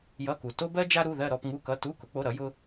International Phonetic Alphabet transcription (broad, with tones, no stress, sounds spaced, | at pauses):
j ʌ˧˥˧ k u˨ t o˥ b ɜ˥ d͡ʒ a˥ ɾ u˧˥˧ ð ɜ˥˧ ɾ ɔ˥˧ p ŋ u˧˥˧ k ʌ˧˥˧ t u˧˥˧ k ʊ˨˥ k͡p o˧˥˧ ɾ ʌ˨˥ j ʊ˥